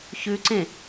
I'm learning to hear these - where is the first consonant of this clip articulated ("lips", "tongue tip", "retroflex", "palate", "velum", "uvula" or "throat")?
palate